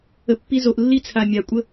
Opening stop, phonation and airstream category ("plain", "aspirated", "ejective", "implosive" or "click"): plain